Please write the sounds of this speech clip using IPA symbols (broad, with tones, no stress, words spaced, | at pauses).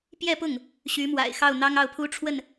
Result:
pjɛ˥˧pʊ˥˩ŋ | ɕy˧˥mwa̰˨˩ɪ̯xɑ˥˩ʊ̯ n̪ɑ˥ŋɑ˥˩ʊ̯pʰu˥ʈ͡ʂʰwə˥˩n